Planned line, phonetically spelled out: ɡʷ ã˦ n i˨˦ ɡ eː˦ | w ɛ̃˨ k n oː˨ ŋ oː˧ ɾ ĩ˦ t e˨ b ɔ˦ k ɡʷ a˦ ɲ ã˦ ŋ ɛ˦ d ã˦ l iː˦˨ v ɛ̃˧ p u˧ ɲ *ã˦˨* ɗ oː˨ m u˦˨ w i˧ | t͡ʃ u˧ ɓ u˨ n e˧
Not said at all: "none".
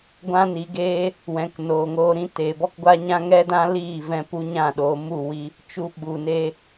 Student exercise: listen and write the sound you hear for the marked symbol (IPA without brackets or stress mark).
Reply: ã˦˨